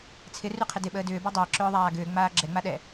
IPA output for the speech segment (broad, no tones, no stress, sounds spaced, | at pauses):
t͡sʰ ɪ r y qʰ ɪ d ɪ ɓ əː d ʏː b a dˤ əː ǁ ʏː ðˤ aː ɡ ʏː ŋ͡m aː ɡ͡ǁ ɛ ŋ͡m a ɗ ɛ